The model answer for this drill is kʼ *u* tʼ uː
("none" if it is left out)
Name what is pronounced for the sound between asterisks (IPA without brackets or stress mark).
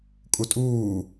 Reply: u